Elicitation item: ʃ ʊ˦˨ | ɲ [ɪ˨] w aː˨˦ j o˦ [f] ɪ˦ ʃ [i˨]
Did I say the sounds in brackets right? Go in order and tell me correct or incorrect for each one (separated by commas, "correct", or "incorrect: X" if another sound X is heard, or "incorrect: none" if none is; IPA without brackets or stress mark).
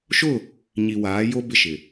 incorrect: i˨, incorrect: b, incorrect: ɪ˨